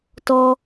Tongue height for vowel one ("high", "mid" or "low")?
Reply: mid